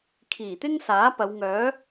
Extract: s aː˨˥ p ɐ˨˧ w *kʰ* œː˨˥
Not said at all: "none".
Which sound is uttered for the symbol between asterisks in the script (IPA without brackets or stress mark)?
ŋ